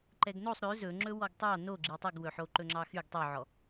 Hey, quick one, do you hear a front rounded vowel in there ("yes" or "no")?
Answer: yes